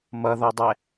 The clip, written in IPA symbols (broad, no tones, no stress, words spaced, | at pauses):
mʌðɔdˤɛ